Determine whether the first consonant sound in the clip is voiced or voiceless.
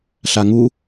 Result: voiceless